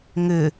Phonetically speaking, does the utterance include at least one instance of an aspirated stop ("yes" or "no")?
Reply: no